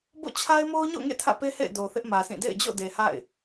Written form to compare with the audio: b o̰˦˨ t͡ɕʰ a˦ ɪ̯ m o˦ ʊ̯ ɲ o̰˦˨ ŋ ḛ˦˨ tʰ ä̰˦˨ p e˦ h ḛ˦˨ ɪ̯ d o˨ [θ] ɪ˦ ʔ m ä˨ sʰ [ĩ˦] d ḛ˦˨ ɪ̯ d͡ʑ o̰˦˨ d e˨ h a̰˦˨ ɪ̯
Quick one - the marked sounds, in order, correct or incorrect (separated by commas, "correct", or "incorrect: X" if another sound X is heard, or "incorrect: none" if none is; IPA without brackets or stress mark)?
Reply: correct, incorrect: ĩ˦˨